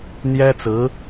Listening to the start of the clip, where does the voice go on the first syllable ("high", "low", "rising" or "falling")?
high